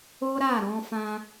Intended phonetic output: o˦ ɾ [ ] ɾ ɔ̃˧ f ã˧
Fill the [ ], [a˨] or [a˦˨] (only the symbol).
a˦˨